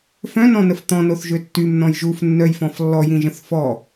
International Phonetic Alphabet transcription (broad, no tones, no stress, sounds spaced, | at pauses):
f œ̃ n ɔ̃ n ə f t̪ ɔ̃ n o θ ʒ ø tː y m n ɔ̃ j ʒ u f nː œ j f ɔ̃ f lː ɔ j ĩ ʒ ə̃ θ f ɔ